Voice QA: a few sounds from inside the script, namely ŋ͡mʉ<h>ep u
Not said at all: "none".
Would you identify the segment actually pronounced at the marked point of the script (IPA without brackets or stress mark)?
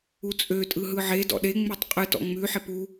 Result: ħ